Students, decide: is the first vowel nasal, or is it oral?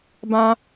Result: nasal